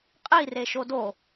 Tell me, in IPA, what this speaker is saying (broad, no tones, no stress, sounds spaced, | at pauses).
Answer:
qʼ i r e ʃ o d o